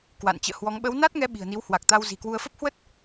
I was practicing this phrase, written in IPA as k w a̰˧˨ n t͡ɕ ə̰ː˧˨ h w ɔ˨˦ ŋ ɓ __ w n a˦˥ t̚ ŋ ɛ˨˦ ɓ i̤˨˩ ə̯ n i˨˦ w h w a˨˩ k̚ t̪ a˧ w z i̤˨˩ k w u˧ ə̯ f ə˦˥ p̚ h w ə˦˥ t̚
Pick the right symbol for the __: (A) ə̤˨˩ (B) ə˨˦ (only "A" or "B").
B